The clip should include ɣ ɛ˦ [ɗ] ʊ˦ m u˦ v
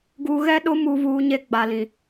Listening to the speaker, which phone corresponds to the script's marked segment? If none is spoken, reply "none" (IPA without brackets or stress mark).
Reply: ɗ